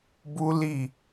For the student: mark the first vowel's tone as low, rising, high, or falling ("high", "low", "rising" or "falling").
high